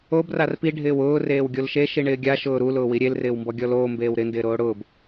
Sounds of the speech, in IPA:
o b r a r p i ɖʱ ɪː w ʊː r eː w ɡʲ o l ʃ e ʃ i ɳ ɪː ɡʲ a ʃ ʊː ɾ u l ʊː w i ɾʲ e l r ɪː w m b ɔ ɡʲ ɔ l oː m b eː w ɾ ɪ n d ɪː ɾ oː ɽ ʊː b

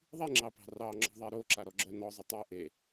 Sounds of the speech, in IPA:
ðˤ i ŋ͡ǁ ɑ p ɑ̤ r ɑ ŋ͡ǁ ɔ̤ ðˤ e ɾ o ǁ a ɾ ɔ ɡ͡ǁ œ n ɔ zˤ ʊ tˤ o ʔ e

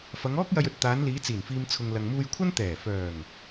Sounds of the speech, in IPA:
f ɐ˨˧ ŋ ɔː˥ k̚ j ɐ˧ j ɵ˧ t̚ t̪ aː˨˧ n l iː˨˧ t͡s iː˨˩ n f iː˨ m t͡sʰ ʊ˨ ŋ l ɐ˨ ŋ m uː˧ j kʷʰ ɐ˥ n t̪ ɛː˨˩ f œː˨˩ ŋ

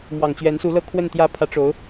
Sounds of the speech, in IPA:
m w ɑ˨˩ ŋ t͡ɕ ɥ ɛ˧˥ n s u˧˥ l ɤ˥ kʰ w ə˥˧ n t̪ j ä˥˩ pʰ ä˧˥ ʈ͡ʂ o˧˥ ʊ̯

